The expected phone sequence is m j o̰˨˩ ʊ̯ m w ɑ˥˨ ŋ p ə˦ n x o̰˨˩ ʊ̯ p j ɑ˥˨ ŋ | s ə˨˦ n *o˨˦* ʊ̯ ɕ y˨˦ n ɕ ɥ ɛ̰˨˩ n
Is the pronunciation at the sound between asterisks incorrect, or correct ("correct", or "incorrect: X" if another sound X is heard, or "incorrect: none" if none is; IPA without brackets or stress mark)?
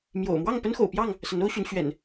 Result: incorrect: o˦